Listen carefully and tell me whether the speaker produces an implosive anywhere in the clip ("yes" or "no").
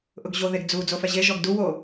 no